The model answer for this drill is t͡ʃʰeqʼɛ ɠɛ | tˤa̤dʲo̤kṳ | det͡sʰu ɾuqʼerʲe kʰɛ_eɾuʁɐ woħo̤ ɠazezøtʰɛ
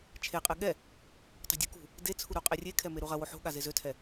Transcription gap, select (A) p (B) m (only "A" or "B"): B